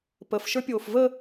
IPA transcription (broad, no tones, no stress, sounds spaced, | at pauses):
p ə f ʃ ə˞ pʲ oː f v ə